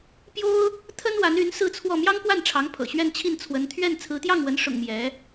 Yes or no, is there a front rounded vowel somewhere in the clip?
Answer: yes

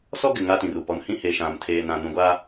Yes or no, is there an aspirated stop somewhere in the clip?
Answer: yes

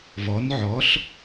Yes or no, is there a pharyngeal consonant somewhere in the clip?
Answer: yes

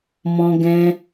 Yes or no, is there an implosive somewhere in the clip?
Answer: no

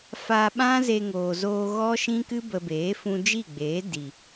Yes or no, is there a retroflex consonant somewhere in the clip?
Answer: no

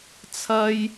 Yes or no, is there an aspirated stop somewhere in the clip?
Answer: yes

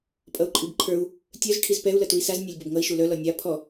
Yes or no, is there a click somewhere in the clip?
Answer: yes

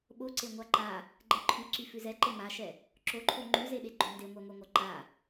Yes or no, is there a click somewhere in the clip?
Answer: yes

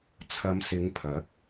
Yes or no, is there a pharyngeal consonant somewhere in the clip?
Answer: no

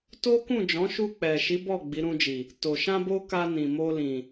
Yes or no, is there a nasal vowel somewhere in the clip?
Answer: yes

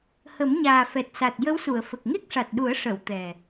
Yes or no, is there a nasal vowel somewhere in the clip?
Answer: no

